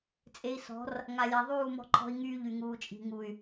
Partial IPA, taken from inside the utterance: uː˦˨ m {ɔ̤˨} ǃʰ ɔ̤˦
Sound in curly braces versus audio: incorrect: ɔ̤˦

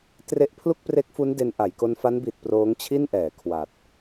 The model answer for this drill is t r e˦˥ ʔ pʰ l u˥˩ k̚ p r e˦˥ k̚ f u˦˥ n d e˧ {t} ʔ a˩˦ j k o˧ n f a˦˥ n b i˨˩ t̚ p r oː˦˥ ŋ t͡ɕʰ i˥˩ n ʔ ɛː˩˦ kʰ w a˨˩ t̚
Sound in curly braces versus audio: incorrect: n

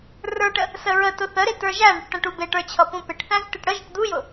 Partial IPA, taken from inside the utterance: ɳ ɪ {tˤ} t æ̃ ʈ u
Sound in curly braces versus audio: incorrect: ʈ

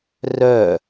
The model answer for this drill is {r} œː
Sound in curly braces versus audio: correct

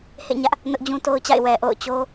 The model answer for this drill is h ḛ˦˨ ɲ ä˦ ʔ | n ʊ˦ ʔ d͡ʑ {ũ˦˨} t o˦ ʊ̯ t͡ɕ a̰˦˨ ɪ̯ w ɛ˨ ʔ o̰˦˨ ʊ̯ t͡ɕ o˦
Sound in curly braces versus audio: incorrect: ũ˦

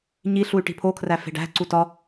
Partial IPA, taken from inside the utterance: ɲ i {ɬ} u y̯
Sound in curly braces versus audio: correct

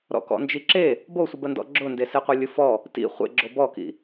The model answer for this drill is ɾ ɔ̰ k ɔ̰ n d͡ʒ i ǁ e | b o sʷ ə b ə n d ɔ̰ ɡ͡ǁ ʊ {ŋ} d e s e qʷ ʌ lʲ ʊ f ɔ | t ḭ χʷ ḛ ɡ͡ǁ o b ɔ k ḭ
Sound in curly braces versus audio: incorrect: n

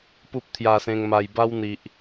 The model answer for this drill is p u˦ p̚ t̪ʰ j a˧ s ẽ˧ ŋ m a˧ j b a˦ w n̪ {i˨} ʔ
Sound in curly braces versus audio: correct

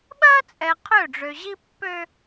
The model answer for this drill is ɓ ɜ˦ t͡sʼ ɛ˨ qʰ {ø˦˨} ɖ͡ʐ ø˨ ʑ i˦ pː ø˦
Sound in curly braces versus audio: correct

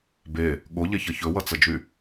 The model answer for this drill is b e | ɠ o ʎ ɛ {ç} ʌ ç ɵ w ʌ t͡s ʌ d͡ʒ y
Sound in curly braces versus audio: correct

